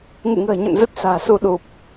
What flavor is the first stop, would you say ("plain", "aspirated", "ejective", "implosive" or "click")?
plain